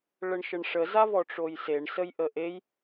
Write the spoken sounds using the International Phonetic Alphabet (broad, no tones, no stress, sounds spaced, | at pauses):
ɭ ə ɳ ʃ ə ɳ ʂ ə z a v ɔ ʈ͡ʂ o j s e ɳ s ə j ʔ ə ʔ e j